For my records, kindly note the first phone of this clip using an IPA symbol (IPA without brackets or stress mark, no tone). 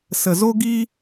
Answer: s